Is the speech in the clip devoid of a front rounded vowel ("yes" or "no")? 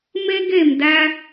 yes